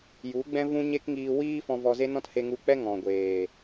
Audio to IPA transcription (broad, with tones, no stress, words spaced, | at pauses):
ju˨˦ɡ͡bɛ̃˦vũ˦ ɲe˦kŋiː˧ wiː˦fɔ̃˧ vɔ˧ze˦nɔ̃˦t he˧ŋu˧k͡pɛ˦ ŋɔ̃˨ɡʷeː˨